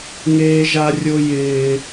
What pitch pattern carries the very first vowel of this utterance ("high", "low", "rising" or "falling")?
high